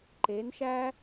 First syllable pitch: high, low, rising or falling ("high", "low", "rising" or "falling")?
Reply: rising